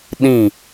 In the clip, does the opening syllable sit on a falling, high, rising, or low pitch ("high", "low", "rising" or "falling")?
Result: falling